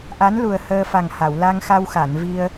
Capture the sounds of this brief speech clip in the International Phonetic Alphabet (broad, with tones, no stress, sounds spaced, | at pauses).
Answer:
ʔ a˧˥ n l u˨˩ ə̯ h əː˧ f a˨˩ ŋ h a˨˩˨ w l a˧ ŋ x a˧ w x a˨˩˨ n v i˧ ə̯